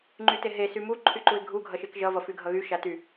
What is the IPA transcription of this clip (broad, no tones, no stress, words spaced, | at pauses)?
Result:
ŋ͡ǃyteɦe symu ǃʰyǃuɪ̯ɡʱu ɡʱʌʃekʒʌ vʌfyɡʱʌɣy ʃaty